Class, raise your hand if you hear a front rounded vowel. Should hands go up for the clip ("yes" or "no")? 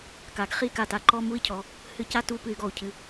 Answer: yes